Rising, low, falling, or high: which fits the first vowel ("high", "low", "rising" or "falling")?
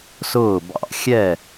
falling